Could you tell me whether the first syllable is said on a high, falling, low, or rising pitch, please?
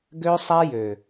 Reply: high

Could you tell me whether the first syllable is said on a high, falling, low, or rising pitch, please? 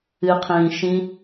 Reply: low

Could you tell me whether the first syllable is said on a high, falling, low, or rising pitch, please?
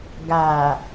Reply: low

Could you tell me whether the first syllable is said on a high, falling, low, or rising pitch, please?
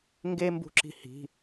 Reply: high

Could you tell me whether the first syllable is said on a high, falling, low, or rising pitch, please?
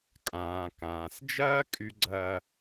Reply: low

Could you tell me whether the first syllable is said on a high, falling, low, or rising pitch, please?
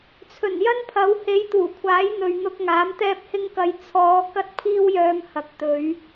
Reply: low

